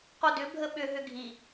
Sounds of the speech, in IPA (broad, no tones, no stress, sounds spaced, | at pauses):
q o d ʏ bʱ ə ɓ ʏ ɦ ʏ ɡʱ i